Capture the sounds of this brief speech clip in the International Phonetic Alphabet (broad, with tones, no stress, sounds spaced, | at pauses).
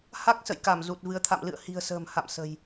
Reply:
h a˦˥ k̚ s ə̰˧˨ j k a˧˩ m z u˨˩ t̚ v ɨ˨˦ ə̯ t̪ʰ a̰˧˨ m l ɨ̰˧˨ ə̯ h i̤˨˩ ə̯ s ə̤ː˨˩ m h a̰˧˨ m s ə̤˨˩ j